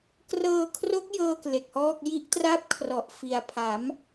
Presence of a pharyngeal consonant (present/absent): absent